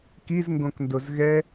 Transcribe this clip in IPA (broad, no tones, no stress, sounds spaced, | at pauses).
k i z ŋ ɡ õ k n d o z ɣ ɛ